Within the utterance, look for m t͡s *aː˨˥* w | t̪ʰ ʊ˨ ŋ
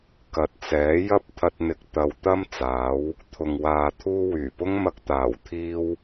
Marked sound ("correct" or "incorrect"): correct